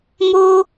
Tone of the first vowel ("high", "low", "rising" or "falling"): high